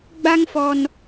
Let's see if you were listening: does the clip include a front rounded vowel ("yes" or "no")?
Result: no